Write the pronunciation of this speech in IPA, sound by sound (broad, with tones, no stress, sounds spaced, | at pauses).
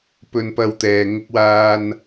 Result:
p ɵ˧ n p ɐ˧ w t̪ ɛː˨ ŋ ʊ˧ k̚ w aː˧ n